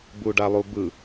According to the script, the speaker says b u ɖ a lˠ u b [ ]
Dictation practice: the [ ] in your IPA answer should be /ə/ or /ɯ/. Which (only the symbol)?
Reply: ɯ